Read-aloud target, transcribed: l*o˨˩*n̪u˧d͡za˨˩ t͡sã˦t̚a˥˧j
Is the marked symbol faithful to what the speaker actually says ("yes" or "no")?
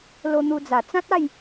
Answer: no